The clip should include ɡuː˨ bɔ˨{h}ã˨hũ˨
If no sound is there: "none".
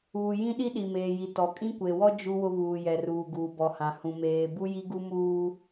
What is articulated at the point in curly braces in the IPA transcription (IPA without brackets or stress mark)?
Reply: h